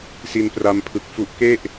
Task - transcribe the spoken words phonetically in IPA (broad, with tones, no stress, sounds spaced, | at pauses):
s i˧ n p r a˧ m pʰ ɯ˨˩ k̚ f u˦˥ ʔ k e˥˩ ʔ